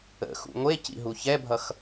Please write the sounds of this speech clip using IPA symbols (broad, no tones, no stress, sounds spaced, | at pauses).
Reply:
ə̰ x ṵ ŋʷ e c ḭ ɦ u ç ɛ bʱ ʌ x